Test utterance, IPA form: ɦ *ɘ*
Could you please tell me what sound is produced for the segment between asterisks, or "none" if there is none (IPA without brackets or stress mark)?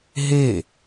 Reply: e